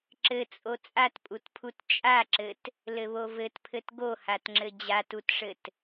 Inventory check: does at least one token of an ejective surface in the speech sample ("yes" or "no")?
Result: yes